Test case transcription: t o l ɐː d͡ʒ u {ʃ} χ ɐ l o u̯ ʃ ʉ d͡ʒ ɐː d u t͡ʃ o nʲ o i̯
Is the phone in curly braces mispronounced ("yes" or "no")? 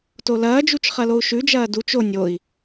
yes